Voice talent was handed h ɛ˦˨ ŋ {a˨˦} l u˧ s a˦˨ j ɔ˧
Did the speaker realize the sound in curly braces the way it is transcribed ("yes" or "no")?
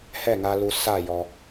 no